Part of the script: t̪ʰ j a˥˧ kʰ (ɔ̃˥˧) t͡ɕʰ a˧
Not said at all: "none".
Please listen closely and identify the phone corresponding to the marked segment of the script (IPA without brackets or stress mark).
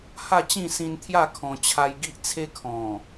ɔ̃˧